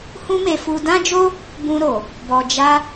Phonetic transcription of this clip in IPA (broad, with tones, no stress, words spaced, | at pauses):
hũ˦me˧fu˧ dã˦d͡ʒo˦ | bũ˧ɾo˨ | bɔ˨d͡ʒa˧